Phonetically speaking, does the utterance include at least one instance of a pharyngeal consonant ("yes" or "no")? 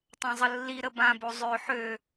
yes